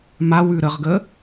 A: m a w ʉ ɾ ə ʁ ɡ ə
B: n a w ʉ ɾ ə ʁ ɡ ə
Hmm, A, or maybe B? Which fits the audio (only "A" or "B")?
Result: A